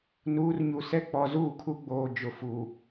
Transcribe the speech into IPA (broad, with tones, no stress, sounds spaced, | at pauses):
n uː˨˦ r ɲ u˨ s ɛ˦ k͡p ɔ˨ z uː˦˨ kʰ u˦ ɡ͡b oː˨ d͡ʒ ʊ˨ f u˨